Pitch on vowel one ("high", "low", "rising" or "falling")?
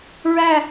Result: falling